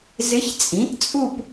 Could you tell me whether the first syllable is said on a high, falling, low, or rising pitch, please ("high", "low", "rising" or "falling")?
rising